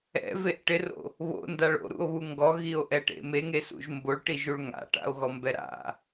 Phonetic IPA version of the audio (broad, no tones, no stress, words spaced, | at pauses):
ɛ̰veʔ ʈɪro̰ | βo̰ndaɭ o̰ɾṵo̯βu ŋɡɔɣio̯ʔɛʈḛ meŋesṵʒ mboɭʈiʒuɭ ŋa̰ʈa̰o̯ɣɔmbɛ ɾa̰